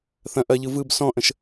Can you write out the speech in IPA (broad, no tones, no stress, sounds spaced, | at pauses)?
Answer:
θ ɐ̃ ʔ ɐ ʎ ɯ v ɯ b s ɔ̃ ʔ ə̃ ʃ